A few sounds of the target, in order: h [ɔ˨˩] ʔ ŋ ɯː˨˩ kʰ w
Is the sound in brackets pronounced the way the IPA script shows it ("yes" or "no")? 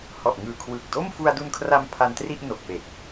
yes